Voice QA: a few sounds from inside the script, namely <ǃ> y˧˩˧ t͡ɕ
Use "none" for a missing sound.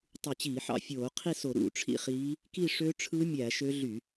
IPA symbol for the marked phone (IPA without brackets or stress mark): tˤ